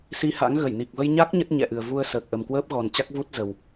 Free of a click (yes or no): yes